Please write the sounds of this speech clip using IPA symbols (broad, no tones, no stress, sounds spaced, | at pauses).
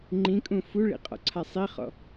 ŋ͡ǃ ĩ kʼ ũ f u ɭ ḭ qʼ ɔ̰ ǀʰ a sˤ i χ ɔ̰